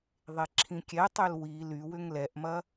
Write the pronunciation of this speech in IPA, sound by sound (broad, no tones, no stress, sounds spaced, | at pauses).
ðˤ e ǁʰ ĩ kʲ ɛ tˤ ø l w i l y w ʏ ŋ l ɛ ʔ m ɐ